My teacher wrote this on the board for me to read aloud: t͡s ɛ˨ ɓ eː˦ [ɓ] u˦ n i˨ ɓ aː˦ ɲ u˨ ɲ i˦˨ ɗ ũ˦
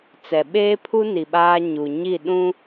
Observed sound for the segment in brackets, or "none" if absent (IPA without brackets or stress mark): pʰ